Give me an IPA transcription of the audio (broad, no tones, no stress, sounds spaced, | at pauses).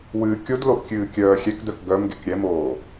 w ɨː kʲ o d l o ʔ kʲ ɨː kʲ œː xʲ ɛ k d œ k ɡ œ m ɡ e k ɾʲ ɛ m oː